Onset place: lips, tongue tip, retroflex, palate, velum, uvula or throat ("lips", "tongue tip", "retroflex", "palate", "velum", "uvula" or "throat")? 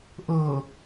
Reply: throat